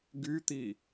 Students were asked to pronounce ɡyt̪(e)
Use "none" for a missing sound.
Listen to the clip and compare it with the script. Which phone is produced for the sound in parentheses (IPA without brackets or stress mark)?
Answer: i